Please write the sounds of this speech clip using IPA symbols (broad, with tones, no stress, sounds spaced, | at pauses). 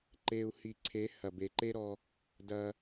ǃ e˧ u̯ h i˨ ǀʰ e˨˦ h ɐ˨ b e˨ ǃ e˦ ɾ ɔ˧ | d ɐ˦